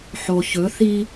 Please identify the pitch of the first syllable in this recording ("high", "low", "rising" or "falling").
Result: low